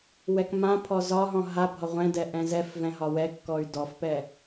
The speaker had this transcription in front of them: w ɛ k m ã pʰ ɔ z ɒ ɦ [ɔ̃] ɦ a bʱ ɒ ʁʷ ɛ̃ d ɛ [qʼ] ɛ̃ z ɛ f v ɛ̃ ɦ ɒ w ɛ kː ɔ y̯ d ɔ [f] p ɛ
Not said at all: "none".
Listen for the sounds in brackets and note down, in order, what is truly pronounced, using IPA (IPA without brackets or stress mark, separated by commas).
ɔ̃, ʔ, f